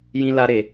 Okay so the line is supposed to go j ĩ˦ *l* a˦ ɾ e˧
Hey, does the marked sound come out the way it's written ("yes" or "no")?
yes